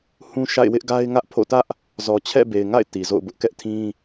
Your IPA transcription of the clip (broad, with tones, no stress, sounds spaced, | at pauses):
h ũ˦ ʃ a̰˦˨ ɪ̯ w ɪ˦ ʔ ɡ a˦ ɪ̯ ŋ ä˦ ʔ pʰ o̰˦˨ t ä˦ ʔ | z ɔ˨ t͡ɕʰ ɛ̰˦˨ b e˨ ɪ̯ ŋ a̰˦˨ ɪ̯ t i˨ z o̰˦˨ ʊ̯ b ʊ˦ ʔ k ɛ˦ ʔ tʰ ĩ˦